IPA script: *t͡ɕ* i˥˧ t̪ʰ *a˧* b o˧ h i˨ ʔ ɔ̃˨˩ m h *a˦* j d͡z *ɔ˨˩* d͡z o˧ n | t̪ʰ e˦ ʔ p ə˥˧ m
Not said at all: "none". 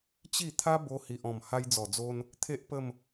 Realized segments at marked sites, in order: t͡ɕ, a˦, a˧, ɔ˨˩

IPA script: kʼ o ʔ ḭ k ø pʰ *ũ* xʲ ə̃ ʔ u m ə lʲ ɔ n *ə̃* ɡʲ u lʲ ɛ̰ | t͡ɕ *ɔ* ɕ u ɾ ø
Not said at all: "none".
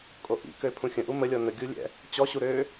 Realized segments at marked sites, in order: ũ, ə, ɔ

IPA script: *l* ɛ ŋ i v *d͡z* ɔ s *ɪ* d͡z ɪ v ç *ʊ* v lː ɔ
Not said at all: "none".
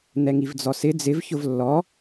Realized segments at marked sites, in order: n̪, d͡z, ɪ, ʊ

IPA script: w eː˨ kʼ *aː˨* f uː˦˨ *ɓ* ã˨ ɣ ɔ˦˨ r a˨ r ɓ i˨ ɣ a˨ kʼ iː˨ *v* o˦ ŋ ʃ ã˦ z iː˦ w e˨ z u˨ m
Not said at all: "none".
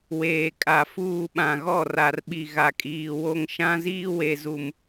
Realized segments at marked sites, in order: a˨, ɓ, w

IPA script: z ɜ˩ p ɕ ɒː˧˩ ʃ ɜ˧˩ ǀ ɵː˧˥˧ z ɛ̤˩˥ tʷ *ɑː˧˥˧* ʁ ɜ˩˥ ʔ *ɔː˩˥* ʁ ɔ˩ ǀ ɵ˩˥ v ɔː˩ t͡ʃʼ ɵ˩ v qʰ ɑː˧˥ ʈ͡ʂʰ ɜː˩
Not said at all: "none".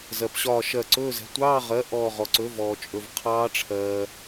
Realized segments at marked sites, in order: ɑː˧˥˧, ɔː˧˩

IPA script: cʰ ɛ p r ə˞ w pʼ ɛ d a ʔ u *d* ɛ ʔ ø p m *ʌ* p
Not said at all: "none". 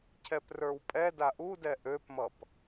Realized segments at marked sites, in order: d, ʌ

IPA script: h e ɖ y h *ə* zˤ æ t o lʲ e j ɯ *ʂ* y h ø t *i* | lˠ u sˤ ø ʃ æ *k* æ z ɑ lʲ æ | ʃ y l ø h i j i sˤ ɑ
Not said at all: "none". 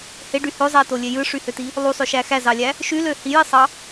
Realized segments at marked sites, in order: ø, ʂ, i, x

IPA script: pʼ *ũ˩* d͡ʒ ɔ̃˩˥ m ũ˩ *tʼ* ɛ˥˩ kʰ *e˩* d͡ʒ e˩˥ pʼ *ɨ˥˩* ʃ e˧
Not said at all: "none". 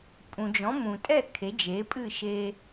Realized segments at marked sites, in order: ũ˩, tʼ, e˩˥, ɨ˥˩

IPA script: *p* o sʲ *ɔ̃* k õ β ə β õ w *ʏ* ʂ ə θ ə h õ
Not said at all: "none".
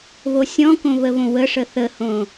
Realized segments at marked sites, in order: β, ɔ̃, ə

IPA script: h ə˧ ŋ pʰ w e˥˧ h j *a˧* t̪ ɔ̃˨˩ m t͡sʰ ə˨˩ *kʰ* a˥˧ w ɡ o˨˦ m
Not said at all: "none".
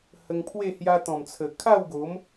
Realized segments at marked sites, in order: a˦, kʰ

